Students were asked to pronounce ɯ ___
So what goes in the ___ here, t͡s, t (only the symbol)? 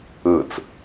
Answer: t͡s